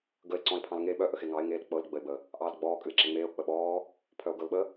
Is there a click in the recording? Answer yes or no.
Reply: yes